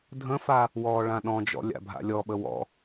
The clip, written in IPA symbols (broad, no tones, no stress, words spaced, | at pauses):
dʱə̃fa | wɔːɭãɗɔ̃d͡ʒɔ̰ lʲa̰bʱa̰lʲɔɓə wɔ̰